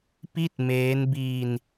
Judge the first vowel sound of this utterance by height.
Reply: high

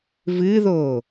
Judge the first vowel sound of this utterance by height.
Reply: high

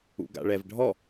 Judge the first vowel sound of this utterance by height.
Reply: high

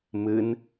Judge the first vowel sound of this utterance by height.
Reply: high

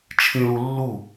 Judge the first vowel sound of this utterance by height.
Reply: high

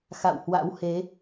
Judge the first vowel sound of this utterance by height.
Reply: low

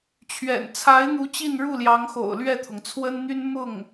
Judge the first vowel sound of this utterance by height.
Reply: mid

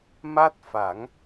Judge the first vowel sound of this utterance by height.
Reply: low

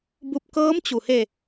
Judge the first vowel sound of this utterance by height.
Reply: high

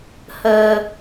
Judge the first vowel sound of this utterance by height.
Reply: mid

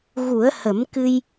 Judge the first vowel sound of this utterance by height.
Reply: high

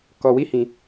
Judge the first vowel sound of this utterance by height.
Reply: mid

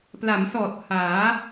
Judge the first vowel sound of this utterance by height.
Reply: low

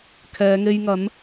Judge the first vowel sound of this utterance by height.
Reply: mid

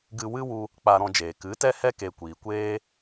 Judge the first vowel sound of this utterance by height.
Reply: high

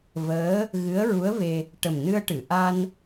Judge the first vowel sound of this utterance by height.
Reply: mid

